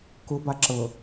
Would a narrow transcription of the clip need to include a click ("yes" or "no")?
yes